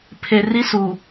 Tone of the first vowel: low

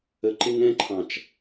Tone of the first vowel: low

